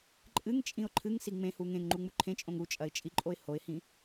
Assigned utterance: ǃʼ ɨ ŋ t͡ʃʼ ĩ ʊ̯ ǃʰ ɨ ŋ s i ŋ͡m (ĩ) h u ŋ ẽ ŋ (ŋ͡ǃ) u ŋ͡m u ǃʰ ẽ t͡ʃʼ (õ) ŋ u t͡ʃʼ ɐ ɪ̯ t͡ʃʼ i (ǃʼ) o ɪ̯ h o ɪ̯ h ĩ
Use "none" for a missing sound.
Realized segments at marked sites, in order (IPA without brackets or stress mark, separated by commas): ẽ, ŋ͡ǃ, õ, ǃʼ